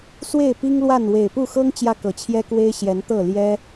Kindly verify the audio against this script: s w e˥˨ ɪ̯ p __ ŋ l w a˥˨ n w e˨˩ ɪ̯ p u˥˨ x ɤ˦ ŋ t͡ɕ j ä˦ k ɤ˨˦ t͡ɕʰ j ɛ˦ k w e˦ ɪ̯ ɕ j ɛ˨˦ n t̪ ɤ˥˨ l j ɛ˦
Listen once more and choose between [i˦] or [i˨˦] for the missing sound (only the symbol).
i˦